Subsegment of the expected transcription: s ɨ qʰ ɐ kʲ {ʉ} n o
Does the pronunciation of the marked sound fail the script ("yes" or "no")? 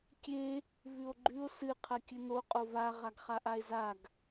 yes